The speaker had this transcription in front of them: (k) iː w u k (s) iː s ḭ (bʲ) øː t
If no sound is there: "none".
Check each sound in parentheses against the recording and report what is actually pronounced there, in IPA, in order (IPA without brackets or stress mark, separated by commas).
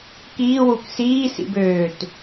k, s, b